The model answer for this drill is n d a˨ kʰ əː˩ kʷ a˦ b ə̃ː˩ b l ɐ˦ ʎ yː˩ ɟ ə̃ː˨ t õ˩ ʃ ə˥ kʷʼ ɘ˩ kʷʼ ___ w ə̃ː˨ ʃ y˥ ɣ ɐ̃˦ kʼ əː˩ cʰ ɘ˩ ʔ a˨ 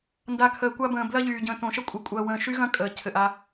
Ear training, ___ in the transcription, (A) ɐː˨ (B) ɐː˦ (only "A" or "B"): A